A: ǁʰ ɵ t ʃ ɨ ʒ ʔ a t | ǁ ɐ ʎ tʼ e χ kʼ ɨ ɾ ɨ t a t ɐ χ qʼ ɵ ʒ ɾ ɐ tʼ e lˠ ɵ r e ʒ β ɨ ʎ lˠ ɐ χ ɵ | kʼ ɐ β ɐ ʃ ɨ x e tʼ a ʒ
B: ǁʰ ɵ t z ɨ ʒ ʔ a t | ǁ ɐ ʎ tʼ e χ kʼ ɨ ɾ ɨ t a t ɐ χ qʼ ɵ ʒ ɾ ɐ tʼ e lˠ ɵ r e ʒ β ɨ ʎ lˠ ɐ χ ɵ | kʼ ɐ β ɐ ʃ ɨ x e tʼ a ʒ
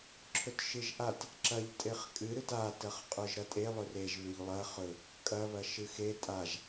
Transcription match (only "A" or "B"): A